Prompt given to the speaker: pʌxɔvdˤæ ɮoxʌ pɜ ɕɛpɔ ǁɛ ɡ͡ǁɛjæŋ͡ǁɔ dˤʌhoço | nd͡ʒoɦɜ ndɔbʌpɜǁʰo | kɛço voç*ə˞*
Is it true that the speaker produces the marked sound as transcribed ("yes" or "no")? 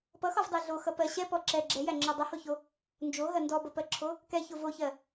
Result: no